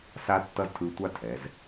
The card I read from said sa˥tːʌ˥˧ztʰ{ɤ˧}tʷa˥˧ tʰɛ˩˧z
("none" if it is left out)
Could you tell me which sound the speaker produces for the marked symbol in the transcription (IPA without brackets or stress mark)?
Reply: ɯ˧